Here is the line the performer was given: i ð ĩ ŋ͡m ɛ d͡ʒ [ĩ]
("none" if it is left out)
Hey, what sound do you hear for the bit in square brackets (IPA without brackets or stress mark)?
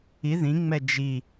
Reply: i